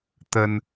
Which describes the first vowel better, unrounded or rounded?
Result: unrounded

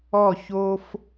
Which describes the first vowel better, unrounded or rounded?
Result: rounded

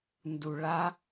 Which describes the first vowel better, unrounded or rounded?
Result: rounded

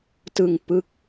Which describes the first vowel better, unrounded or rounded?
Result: unrounded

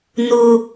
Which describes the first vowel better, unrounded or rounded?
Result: rounded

